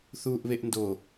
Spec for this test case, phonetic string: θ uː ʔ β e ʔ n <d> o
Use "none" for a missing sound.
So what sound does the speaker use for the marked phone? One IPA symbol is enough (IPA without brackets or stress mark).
d